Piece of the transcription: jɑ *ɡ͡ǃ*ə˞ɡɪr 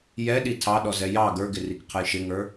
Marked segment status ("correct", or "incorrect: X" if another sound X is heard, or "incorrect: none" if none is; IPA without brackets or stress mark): incorrect: ɡ